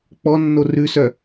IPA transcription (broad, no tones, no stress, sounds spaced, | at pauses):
k͡p ɔ nː o r ʉ s œ